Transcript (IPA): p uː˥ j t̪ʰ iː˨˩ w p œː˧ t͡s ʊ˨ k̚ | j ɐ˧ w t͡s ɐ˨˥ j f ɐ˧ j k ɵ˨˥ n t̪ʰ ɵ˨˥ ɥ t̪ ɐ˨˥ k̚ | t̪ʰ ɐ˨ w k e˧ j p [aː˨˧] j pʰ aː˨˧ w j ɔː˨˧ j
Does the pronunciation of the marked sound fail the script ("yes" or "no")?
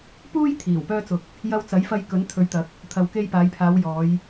no